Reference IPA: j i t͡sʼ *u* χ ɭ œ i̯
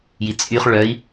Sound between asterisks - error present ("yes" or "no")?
yes